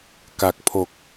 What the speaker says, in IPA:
ka˨˩k̚pʰo˨˩k̚

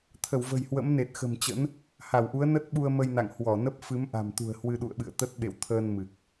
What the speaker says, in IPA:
t̪ʰə˧˩wvə̤˨˩jhwə̰˧˥mne˨˩t̚ xə̤˨˩mt͡ɕə̰˧˥n | ha˧˩wʔu˨˦ə̯ nə˦˥t̚ɓu˧ə̯ mə˧jna̰˧˨ŋhwɔ˧˩ nə˦˥p̚ fɨ˨˦mʔa̤˨˩mt̪ṳ˨˩ə̯ hwɨ˧ɗṵ˧˨ə̯ɓɨ̰˧˨ə̯t̪ə˦˥t̚ ɓḛ˧˨wt̪ʰəː˧n mɨ˨˩k̚

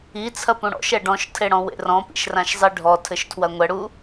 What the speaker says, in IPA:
it͡sʰɐ pũɽɔ̰ʃɛ ɖɔ̃ʃtʰe ɽɔ̃wḛrɔ̃pḭʃ rãʃzˤiɖʱɔtʰɘʃ tʰwɐŋʷɛɽu

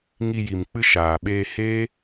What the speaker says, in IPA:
ŋi˧ji˨mk͡pɨ˦ʃaː˨ ɓeː˧heː˦

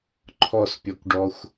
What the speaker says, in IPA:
ǃʰɔspʲɔkʷɖɔxʷ

